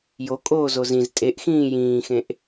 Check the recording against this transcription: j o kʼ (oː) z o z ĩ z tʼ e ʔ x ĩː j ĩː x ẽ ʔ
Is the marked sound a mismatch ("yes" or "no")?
no